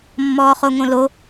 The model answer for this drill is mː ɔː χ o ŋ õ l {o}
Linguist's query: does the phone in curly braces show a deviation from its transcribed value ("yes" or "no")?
no